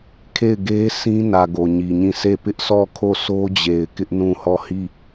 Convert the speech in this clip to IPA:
kʰ e˦˨ ɪ̯ ɡ e˦ s ĩ˦ n ä˨ ɡ o˨ ɲ i˨ ɲ ĩ˦˨ sʰ e˦˨ p ɪ˦ ʔ sʰ ɔ˦˨ kʰ o˦˨ s o˦ d͡ʑ e˨ ɪ̯ k ɪ˦ ʔ n ũ˦˨ h ɔ˦˨ h i˦˨

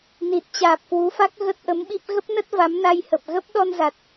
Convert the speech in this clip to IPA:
n i˨˩ t̚ t͡ɕ aː˨˩ p̚ k w u˨˦ f a˦˥ k̚ ɣ ə˦˥ t̚ ʔ ə˨˦ m ɓ i˦˥ p̚ ɣ ə˦˥ p̚ n ə˦˥ t̚ v a˨˦ m n a˧ j h ə˨˩ p̚ ɣ ə˦˥ p̚ ɗ ɔ˧ n z a˨˩ t̚

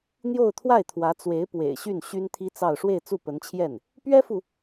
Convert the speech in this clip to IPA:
n̪ j o˥˧ ʊ̯ t̪ʰ w a˥˩ ɪ̯ t̪ʰ w ä˧˥ t͡s w e˧˥ ɪ̯ p w ḛ˨˩ ɪ̯ ɕ y˥˩ n ɕ y˥ n t̪ʰ i˥ t͡s ɑ˥˧ ʊ̯ ʂ w e˥˧ ɪ̯ t͡s u˥˩ p ə˧˥ n t͡ɕʰ j ɛ˥˩ n | p ɥ ɛ˥ f u˨

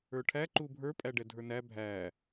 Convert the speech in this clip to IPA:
ə˞ ʈʰ æ ǃ u bʱ ə˞ pʼ æ ɖ ɛ dʱ ə˞ n æ bʱ æ

